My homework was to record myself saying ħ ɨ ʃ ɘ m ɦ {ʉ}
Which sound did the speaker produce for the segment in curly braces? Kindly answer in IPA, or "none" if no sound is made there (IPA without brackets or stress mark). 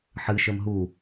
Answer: u